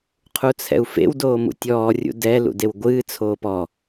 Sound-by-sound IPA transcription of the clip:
qʰ u t͡sʰ ɛ̰ u̯ f ḛ w d oː m ṵ tʲ ɔː rʲ ṵ d ɛ l ṵ d e w ɡʷ ɨː t͡sʰ oː p ɔ

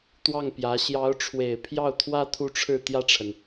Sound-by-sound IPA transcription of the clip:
t̪ w ɑ˥˩ ŋ p j ä˧˥ ɕ j ɑ˧˥ ʊ̯ ʈ͡ʂʰ w e˨˩ ɪ̯ pʰ j ɑ˥˩ ʊ̯ t̪ʰ w ä˥ t̪ʰ u˥˧ ʈ͡ʂʰ ɻ̩˥˧ t̪ j ä˥˩ ʈ͡ʂʰ ə˩ n

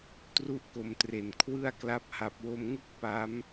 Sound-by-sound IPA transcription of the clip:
t r u˥˩ ʔ k o˧ m t r e˨˩ n kʰ w ɯ˥˩ a̯ k l a˦˥ p̚ h a˨˩ p̚ w o˧ m ŋ ɯ˥˩ k̚ p a˦˥ m

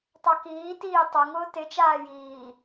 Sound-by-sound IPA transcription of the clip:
tˤ a k iː t iː tˤ o ŋ ʊː t ɪ t͡ʃ aː j iː

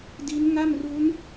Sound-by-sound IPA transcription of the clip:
d i˦˥ n ŋ a˥˩ m r u˦˥ n

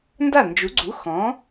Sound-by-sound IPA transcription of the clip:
n d a˥˩ n d͡ʒ u˩˥ ɡ͡ǀ u˩˥ x ɔ̃˩˥

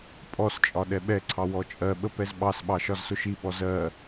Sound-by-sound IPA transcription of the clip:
pʼ ɔ s t͡ʃʼ ɒ ɗ ɛ ɓ ɛ ǀʰ ɑ w ɔ t͡ʃʼ ɜ ɓ ə p ɛ z ɓ ɑ s ɓ ɑ ʃ ɒ z s ʊ ʃ i ɓ ɔ z ɜ

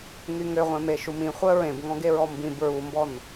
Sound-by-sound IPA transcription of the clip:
ŋ y ŋ ø ʁʷ ẽ m e ʃ u m ĩ χʷ œ ɹ ẽ b ŋ ɔ̃ ɡ e ɹ ɔ m b ĩ b ɹ u m b ɔ n

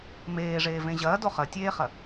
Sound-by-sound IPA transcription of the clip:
m eː ʐ eː v ẽ ʑ ɐː d o χ ɐ tʲ eː χ ɐ

